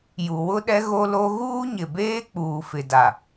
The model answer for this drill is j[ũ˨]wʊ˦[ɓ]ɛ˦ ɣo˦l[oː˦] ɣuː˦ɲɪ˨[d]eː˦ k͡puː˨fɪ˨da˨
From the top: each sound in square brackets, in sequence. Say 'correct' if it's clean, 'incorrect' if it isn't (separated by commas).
incorrect, incorrect, incorrect, incorrect